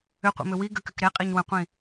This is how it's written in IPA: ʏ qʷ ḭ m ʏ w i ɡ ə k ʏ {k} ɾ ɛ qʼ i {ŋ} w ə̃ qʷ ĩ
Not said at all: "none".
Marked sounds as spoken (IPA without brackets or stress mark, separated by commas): k, ɲ